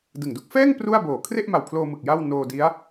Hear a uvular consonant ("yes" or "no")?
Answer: no